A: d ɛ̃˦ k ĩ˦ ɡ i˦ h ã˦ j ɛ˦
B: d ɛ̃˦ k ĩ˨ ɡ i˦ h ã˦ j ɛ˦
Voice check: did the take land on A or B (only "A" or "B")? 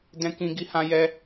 A